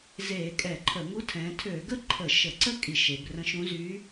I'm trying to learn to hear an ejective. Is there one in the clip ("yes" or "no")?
yes